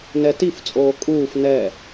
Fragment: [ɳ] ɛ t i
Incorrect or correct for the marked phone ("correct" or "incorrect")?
incorrect